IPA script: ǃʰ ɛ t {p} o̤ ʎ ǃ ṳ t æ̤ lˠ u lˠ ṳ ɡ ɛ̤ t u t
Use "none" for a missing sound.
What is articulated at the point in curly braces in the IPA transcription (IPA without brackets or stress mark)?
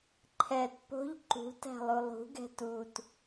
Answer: p